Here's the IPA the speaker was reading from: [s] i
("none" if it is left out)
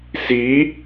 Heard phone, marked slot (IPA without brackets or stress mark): s